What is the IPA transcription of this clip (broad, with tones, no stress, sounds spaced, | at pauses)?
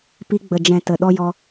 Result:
p i˧ ɡ͡b ə˨ d͡ʒ ɛ̃˨ t ə˨ ɗ ɔ˧ j ɔ˧